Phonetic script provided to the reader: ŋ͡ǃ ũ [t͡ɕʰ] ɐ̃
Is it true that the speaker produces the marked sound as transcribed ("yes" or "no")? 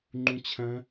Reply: yes